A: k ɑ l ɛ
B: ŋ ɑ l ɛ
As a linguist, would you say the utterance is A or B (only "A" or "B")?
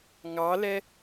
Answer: B